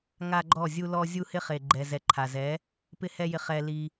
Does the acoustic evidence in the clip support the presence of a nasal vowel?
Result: no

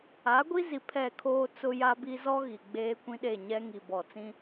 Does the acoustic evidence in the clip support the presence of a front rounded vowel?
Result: no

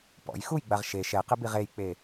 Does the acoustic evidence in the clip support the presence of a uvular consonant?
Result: yes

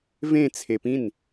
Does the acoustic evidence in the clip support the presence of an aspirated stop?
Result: yes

